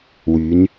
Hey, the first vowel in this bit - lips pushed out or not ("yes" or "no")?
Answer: yes